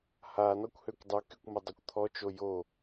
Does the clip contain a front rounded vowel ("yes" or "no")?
yes